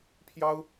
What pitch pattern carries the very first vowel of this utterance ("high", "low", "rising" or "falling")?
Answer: high